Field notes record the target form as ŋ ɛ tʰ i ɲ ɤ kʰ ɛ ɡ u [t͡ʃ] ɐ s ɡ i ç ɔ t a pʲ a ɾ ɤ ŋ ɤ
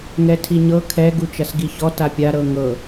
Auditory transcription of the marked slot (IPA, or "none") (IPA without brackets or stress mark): t͡ʃ